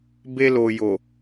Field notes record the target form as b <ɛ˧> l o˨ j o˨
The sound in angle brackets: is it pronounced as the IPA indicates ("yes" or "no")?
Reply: no